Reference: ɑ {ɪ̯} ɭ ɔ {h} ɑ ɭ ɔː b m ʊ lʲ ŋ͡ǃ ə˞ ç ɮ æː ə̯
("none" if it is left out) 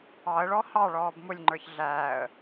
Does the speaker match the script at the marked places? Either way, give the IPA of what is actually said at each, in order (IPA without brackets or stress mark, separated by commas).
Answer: ə̯, h